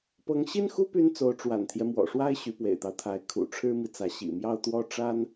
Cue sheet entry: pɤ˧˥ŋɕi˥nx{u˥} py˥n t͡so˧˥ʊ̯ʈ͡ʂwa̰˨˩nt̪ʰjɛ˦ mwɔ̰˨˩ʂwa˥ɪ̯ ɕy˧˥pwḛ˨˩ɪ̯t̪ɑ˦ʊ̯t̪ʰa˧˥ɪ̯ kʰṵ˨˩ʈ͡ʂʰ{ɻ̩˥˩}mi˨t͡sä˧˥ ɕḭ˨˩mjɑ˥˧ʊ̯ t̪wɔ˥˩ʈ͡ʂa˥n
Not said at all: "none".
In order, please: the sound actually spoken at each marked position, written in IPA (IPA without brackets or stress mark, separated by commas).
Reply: u˥, ɻ̩˥